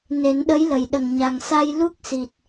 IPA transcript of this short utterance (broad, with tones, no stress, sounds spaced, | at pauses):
n e˨˩˦ n ɗ ə˧˥ j l ə˨˩ j ɗ ə˨˩ ŋ ɲ a˨˩ ŋ s a˧ j l u˦˥ k̚ s i˨˩ t̚